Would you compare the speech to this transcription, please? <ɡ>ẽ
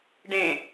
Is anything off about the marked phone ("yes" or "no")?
yes